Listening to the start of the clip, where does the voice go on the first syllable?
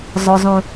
low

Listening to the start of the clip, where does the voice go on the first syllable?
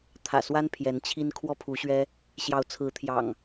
low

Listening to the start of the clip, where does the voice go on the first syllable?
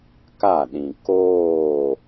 falling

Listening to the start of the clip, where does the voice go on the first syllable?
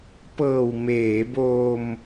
low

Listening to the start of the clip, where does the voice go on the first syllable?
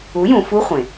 rising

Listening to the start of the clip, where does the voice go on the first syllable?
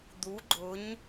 rising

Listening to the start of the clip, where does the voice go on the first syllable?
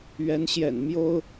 rising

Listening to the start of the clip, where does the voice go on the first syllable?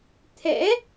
rising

